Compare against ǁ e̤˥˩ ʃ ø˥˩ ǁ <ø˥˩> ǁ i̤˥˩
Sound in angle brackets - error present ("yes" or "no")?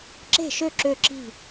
no